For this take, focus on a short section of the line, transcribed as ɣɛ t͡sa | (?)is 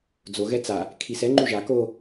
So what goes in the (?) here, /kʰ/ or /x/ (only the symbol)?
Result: kʰ